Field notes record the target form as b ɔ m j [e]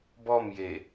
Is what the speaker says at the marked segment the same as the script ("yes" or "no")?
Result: yes